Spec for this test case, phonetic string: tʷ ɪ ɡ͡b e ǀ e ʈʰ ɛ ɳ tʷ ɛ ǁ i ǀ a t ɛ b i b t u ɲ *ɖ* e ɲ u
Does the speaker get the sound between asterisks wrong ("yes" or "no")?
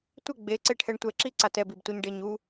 no